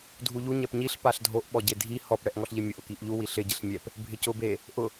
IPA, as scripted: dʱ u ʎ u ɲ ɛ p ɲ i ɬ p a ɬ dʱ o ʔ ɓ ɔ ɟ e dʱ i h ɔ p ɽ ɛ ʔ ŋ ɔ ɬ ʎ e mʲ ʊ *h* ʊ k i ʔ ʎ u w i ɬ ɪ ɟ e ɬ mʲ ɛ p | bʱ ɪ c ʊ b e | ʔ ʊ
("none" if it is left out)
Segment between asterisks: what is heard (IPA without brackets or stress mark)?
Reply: ʔ